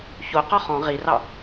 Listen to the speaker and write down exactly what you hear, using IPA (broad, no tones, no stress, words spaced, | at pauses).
çoqɔ χɔ̃ ʁirɑ